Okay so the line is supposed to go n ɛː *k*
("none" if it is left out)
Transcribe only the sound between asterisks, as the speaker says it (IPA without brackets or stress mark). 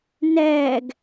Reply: ɡ